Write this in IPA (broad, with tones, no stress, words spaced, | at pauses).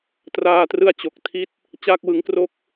traː˧trɯ˦˥a̯ t͡ɕo˨˩k̚tʰi˥˩t̚ | t͡ɕaː˥˩k̚wɯ˦˥ŋkro˥˩k̚